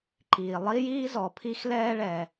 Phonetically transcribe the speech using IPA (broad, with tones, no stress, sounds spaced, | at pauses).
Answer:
ǃ iː˩ lˠ i˥ j iː˥ z ɔ˩ pʰ i˥ x l ɛː˥ ɭ ɛ˩